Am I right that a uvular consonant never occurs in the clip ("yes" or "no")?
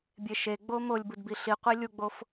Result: no